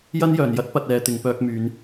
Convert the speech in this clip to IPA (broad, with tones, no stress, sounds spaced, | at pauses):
j ɐ˥ n j œː˨˩ n j ɐ˥ t̚ p ɐ˧ t̚ ɛː˨˧ t̪ ɪ˨ ŋ p œː˧ k̚ m yː˨˧ n